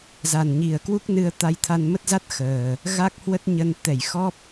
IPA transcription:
za˨˩nɲi˨˩ə̯kwu˦˥k̚ nɨ˧ə̯ t̪a˧jt̪ʰa˧nmə˦˥t̚za˦˥t̚ xəː˨˩ | ɣa˦˥k̚hwə˦˥t̚ɲə˧n t̪ɛ˧˩jxɔ˦˥p̚

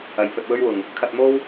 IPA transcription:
ɐ˨˧jpʰɵ˧t̚wɵ˥ɥwʊ˧ŋ | kʰɐ˧t̚mo˥w

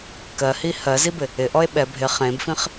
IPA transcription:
kɜhi hɜzibɪ | ɪʔɔe̯ ɓɛ bʱɪ χẽbfĩχ

